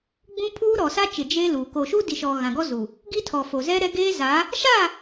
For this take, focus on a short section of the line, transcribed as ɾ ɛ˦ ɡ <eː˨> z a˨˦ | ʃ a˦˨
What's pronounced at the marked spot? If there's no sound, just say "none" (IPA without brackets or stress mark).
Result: eː˦